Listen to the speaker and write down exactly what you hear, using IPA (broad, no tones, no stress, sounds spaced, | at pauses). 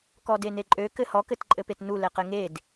k ɔ d e n e ǃʼ ø k ɘ h ɔ k ɘ t ǃʼ ɘ p e t n u l ɛ q ɘ ŋ e d